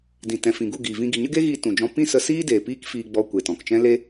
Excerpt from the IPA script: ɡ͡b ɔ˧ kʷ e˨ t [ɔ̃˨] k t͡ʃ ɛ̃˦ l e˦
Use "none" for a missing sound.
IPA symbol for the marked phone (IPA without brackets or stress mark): ɔ̃˨